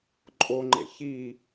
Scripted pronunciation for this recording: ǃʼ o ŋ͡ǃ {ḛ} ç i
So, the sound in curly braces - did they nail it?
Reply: yes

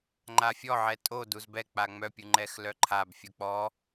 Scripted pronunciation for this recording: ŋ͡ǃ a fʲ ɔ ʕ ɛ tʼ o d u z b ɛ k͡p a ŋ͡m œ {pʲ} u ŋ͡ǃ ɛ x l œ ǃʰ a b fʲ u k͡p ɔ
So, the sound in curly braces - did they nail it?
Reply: yes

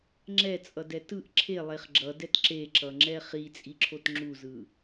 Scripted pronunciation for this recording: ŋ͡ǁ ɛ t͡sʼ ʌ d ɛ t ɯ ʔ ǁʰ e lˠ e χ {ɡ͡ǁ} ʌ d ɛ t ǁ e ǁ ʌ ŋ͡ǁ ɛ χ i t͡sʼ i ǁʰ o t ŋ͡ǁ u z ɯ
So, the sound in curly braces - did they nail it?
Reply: yes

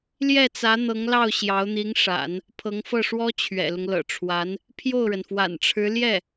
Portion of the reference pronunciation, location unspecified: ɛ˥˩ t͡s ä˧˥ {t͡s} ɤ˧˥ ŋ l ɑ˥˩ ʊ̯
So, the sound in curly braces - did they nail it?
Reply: no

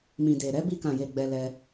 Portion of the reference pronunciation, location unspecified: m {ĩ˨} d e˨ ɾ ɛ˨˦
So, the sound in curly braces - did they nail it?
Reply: yes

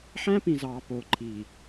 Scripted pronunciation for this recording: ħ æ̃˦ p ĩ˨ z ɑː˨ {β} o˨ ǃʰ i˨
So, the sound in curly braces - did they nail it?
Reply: no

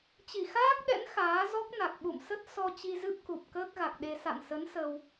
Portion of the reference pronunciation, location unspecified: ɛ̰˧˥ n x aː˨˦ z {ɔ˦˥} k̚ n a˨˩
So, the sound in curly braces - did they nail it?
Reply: yes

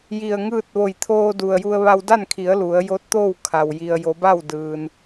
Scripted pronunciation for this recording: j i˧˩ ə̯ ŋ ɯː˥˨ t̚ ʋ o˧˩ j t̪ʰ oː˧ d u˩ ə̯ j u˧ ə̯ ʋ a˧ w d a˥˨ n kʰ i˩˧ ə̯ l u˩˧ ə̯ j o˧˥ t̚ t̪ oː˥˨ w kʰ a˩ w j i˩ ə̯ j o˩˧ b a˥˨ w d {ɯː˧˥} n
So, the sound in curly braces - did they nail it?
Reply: no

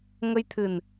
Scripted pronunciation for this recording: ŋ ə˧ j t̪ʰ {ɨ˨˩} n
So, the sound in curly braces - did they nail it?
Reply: yes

